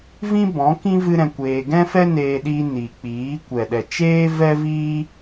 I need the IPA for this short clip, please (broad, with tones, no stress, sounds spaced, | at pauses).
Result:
v ĩ˦ b ɔ̃˨˦ k ĩ˦ v ɨ˦ ɾ ɛ̃˧ kʷ eː˧ ɡ ɛ̃˦ f ɛ˦ n eː˧ ɗ i˧ n i˨ k͡p iː˨˦ kʷ ɛ˨ ɗ ɛ˨ t͡ʃ eː˦ v ɛ˦ v iː˦